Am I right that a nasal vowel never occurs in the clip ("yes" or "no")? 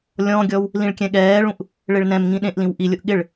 no